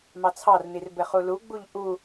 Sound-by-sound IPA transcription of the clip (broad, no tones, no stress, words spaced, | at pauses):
mɑt͡sʰɑrnir bɘχuluɡ͡buʎ ʔu